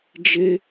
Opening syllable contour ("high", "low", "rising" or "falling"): high